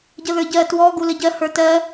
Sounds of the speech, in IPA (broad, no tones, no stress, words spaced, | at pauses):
ɟəðə˞ɟɜ twɔ ɡuləɟɜ hə˞tɜ